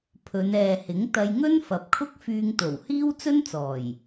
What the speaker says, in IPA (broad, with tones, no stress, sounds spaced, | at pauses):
pʰ ɵ˨˧ n ɛː˨ h ɪ˨˥ ŋ t̪ ɐ˧ j ŋ ɵ˥ n f ɐ˨ p̚ kʰ ʊ˥ k̚ f yː˧ ŋ t̪ o˨˩ w h iː˥ w t͡s ɵ˥ n t͡s ɔː˨˩ j